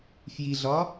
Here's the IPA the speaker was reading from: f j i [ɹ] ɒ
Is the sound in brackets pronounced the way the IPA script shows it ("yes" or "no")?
no